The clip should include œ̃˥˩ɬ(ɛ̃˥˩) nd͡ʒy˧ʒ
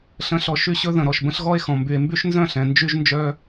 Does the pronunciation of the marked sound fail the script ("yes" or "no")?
yes